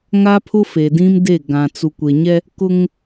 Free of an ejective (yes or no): yes